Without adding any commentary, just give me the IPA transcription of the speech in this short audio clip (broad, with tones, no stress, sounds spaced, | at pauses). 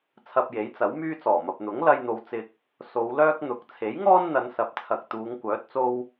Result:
t͡sʰ ɐ˧ p̚ j e˨˥ j t͡s ɐ˨˥ w m yː˥ t͡s ɔː˨˩ m ɐ˨ p̚ n̪ ʊ˨˥ ŋ l ɐ˧ j n̪ o˨˧ w t͡s ɪ˨ k̚ | s o˨˧ w l œː˥ k̚ n̪ ʊ˨˥ k̚ t͡sʰ e˨˥ j ŋ ɔː˥ n n̪ ɐ˨˧ n s ɐ˨˥ p̚ t͡sʰ ɐ˨ k̚ t̪ uː˨˧ ŋ kʷ œː˨˥ t̚ t͡s o˧ w